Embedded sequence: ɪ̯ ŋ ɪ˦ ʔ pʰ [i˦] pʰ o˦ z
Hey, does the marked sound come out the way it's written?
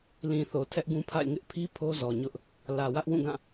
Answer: yes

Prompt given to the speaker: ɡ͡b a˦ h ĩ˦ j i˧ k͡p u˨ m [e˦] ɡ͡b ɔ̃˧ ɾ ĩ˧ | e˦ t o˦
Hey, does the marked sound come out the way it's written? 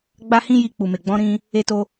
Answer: no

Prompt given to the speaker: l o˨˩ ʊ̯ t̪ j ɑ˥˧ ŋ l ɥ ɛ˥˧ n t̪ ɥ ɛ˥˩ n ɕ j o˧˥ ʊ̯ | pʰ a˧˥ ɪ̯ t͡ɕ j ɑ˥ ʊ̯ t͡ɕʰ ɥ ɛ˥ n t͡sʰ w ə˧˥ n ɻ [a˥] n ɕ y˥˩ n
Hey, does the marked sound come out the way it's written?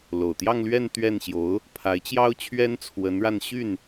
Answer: no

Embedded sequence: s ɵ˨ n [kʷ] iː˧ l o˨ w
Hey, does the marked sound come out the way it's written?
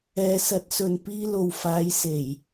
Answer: no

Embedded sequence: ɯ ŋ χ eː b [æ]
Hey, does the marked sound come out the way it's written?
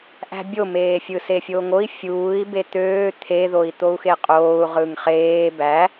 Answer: yes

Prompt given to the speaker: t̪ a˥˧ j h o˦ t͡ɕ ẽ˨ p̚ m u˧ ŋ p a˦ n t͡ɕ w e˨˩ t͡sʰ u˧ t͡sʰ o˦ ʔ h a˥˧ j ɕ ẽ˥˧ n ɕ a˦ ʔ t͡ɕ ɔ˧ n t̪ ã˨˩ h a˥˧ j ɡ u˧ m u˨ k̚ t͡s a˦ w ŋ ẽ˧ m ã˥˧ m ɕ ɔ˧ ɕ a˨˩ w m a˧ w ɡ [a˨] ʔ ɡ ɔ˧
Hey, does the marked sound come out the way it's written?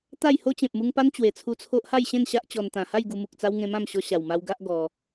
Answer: no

